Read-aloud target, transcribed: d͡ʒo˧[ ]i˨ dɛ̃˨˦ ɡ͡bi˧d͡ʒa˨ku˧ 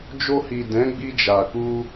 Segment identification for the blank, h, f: h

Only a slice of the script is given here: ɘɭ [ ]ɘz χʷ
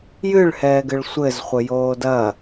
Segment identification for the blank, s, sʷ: sʷ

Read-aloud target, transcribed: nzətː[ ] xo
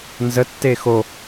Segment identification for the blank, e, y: e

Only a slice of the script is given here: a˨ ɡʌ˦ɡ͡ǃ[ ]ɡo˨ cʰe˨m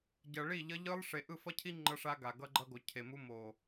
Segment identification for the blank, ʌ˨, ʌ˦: ʌ˦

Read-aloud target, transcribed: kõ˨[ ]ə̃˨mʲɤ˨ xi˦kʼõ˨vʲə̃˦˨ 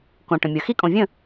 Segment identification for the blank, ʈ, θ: ʈ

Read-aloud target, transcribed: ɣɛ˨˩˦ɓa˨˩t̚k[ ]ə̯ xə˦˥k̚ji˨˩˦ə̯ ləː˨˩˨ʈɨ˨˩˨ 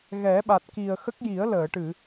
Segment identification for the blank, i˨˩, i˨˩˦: i˨˩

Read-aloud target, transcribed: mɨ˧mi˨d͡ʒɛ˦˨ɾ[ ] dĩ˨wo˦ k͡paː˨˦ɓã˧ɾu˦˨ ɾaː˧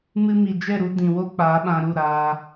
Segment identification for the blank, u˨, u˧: u˧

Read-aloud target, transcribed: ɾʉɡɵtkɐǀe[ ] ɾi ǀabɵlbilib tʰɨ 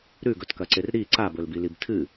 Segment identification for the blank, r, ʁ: r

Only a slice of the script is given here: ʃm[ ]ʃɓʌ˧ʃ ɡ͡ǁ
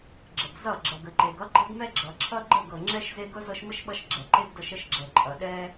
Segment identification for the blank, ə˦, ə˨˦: ə˦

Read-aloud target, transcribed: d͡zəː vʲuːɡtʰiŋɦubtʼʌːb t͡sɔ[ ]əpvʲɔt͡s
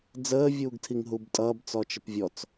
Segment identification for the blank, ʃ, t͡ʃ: t͡ʃ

